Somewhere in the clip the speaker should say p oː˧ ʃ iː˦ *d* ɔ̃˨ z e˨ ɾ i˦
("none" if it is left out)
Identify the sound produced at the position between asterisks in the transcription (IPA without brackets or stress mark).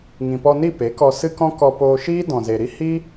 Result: d